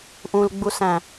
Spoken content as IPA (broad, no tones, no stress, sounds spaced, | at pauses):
ʔ ũ l ɡ͡b u s æ̃